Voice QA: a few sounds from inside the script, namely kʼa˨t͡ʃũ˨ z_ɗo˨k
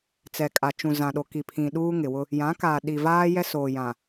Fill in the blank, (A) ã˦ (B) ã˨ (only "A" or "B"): B